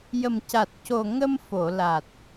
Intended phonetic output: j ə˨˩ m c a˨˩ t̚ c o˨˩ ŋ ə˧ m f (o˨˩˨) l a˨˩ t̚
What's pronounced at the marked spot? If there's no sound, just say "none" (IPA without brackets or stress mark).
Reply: o˨˩˨